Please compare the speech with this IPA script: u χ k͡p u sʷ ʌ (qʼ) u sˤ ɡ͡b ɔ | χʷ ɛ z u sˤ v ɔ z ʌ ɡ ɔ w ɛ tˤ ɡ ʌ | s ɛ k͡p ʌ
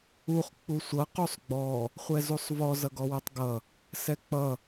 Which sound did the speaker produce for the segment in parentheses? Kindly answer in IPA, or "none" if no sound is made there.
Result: q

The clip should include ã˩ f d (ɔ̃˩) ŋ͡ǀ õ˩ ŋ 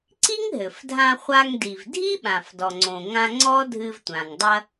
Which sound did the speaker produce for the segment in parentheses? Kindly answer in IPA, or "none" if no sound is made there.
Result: ɔ˩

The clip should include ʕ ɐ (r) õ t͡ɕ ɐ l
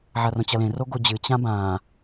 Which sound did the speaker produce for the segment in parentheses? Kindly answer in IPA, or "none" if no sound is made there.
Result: r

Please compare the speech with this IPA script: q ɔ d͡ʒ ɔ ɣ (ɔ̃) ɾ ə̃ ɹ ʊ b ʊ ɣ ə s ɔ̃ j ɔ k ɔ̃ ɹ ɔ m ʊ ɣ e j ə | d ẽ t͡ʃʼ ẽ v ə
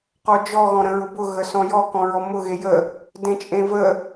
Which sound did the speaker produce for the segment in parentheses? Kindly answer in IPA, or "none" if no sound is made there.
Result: ɔ̃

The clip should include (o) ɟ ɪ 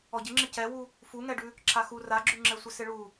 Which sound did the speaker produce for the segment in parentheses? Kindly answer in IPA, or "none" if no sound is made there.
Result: ɔ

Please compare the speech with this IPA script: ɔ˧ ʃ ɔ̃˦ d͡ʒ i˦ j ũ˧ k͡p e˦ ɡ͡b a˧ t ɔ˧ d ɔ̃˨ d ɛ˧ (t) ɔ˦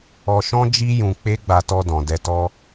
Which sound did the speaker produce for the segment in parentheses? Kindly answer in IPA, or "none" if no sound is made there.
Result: t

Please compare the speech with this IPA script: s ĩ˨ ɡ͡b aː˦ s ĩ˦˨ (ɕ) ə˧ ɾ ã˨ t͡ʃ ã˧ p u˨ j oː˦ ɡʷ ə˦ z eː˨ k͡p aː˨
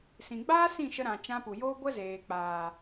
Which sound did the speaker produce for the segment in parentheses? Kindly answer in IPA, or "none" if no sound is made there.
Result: ʃ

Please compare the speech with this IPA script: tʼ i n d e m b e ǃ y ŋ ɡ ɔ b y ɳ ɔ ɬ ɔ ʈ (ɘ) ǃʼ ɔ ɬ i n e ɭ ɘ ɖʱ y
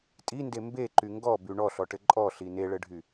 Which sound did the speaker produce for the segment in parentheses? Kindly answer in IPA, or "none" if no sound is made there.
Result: ɘ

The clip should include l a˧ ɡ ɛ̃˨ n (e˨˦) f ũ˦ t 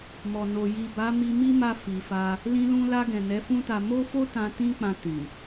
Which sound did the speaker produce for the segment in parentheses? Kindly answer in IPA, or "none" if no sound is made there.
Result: ɛ˨˦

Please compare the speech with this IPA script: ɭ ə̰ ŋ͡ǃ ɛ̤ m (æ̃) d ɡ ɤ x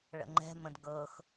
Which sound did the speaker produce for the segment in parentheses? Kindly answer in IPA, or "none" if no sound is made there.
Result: ə̃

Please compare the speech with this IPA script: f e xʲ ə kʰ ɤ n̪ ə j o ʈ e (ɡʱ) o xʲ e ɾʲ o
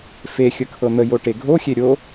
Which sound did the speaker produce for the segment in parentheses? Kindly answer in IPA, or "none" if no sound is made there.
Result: ɡʱ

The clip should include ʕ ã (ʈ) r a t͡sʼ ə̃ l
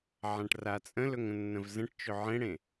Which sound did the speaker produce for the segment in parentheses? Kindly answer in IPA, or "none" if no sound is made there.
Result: ʈ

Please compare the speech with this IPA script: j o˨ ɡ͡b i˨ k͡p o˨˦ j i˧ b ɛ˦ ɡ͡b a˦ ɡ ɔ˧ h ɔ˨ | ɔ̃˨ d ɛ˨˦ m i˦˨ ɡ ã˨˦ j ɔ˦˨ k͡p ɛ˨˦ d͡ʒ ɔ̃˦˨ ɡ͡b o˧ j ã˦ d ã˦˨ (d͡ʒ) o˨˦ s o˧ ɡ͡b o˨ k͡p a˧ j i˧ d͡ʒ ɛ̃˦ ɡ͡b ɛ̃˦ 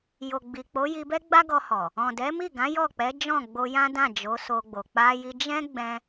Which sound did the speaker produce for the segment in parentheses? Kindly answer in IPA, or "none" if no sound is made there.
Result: d͡ʒ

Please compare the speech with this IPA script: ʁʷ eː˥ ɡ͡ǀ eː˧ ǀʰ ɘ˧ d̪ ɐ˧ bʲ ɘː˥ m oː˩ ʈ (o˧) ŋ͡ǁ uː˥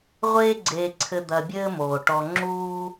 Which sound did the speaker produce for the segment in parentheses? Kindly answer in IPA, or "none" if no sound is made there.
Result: ɔ˧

